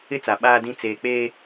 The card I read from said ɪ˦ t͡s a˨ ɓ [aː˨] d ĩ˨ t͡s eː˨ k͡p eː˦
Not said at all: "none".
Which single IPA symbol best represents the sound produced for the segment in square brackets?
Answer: aː˨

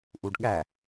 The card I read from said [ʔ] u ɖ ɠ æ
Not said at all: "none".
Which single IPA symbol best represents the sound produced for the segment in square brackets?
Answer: ʔ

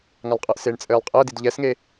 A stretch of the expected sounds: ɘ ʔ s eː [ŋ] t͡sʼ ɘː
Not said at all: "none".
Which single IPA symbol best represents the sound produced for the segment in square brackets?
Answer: ɳ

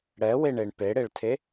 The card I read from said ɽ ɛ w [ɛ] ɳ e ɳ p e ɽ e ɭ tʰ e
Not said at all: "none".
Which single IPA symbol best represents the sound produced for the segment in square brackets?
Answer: e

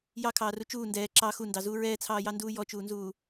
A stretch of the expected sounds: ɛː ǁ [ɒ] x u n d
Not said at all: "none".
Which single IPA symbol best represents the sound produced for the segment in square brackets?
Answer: ɑ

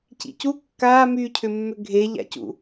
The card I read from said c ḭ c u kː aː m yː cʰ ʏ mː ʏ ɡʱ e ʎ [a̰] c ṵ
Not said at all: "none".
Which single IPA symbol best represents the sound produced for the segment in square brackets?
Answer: a̰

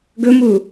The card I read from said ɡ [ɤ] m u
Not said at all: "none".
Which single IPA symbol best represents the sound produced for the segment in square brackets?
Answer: ɵ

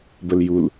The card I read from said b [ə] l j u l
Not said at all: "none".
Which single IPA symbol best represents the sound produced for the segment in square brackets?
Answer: ə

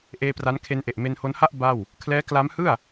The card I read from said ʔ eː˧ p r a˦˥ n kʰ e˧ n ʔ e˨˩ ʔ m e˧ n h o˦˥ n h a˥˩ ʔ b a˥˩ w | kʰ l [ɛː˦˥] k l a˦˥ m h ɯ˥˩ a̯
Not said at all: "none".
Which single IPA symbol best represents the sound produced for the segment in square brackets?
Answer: ɛː˦˥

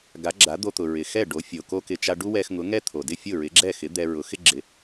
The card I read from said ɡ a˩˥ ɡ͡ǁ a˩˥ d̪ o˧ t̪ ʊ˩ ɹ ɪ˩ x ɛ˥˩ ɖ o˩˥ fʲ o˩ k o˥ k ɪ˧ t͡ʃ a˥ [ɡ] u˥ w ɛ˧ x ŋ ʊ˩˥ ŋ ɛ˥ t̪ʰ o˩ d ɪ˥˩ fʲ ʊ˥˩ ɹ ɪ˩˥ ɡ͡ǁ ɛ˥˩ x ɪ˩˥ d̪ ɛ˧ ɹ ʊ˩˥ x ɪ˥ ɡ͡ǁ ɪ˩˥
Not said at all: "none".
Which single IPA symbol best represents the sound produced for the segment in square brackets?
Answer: ɖ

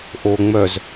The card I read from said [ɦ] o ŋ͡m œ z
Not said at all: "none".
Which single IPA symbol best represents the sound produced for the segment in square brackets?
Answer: ʔ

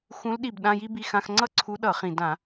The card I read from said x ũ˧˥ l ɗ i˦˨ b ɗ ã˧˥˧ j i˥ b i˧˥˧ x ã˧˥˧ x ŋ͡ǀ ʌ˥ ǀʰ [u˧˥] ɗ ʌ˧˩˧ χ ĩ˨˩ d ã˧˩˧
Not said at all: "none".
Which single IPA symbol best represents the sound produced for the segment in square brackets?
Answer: u˧˥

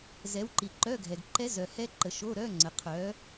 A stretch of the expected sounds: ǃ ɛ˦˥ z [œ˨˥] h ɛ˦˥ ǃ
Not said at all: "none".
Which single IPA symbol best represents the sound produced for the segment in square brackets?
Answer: œ˨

